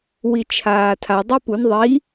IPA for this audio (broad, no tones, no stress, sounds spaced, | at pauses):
w i t͡ʃʰ aː tʰ a dˤ i p u n ðˤ i